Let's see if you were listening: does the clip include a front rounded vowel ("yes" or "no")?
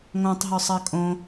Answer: no